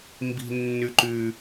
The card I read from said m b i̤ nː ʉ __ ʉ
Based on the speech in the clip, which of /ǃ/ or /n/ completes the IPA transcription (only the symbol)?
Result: ǃ